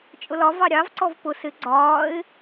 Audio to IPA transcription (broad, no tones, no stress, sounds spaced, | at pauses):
t͡ʃʼ ʊ l ɒ v ɑ ɾʲ ɑ v ǀ ɔ v p ʊ s ɪ ɡ͡ǀ ɒː ɪ̯